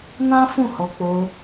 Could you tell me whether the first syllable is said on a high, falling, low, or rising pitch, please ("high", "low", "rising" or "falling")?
high